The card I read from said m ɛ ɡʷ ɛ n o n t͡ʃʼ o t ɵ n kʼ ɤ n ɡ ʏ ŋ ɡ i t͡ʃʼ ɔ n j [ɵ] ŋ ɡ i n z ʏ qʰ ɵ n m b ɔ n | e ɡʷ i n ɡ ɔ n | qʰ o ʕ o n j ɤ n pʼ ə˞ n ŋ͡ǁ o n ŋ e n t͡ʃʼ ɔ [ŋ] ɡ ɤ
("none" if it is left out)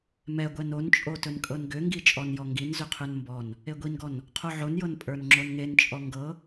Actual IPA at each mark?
ɔ, ŋ

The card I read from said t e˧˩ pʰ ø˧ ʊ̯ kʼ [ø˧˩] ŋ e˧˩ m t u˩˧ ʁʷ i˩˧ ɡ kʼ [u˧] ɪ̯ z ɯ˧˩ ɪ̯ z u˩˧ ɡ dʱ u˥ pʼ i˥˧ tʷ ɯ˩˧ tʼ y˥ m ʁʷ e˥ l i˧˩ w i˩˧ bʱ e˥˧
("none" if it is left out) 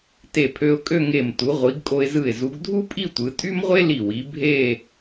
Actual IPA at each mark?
ø˥˧, o˧

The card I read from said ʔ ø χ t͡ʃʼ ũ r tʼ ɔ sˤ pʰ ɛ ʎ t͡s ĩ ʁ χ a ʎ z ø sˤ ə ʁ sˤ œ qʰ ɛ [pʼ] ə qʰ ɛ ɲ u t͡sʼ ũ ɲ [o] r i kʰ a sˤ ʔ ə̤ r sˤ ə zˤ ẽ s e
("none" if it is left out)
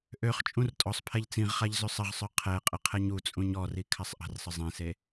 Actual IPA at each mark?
qʼ, ɔ

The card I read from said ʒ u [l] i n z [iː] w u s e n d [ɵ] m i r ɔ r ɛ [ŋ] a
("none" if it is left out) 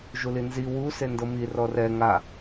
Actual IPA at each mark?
l, i, ɤ, ŋ

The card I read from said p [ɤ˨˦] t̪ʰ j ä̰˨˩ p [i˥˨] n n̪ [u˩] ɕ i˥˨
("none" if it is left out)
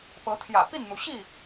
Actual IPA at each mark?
ɤ˨˦, i˥˨, u˩

